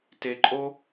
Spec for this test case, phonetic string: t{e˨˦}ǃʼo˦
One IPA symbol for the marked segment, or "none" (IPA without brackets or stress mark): e˨